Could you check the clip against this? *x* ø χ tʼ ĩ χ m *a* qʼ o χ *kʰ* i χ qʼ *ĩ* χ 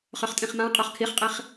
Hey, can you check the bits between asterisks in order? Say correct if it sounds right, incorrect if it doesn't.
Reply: incorrect, incorrect, correct, incorrect

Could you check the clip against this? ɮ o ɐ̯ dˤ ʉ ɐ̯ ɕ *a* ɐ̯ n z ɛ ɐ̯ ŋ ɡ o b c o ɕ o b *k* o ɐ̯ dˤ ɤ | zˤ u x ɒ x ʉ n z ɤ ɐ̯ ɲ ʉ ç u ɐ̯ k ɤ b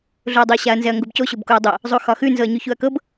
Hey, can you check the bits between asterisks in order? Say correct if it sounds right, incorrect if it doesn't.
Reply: correct, correct

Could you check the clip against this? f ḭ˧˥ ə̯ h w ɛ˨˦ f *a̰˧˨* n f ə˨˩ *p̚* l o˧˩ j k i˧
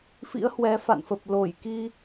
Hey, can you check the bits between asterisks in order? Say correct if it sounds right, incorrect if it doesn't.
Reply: correct, correct

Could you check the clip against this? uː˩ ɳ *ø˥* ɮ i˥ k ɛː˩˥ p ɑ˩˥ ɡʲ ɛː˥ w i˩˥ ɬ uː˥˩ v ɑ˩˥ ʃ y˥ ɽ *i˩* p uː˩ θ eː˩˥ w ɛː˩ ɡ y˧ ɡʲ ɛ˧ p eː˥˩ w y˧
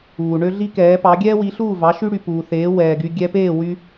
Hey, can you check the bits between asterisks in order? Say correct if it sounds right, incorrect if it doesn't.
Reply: correct, incorrect

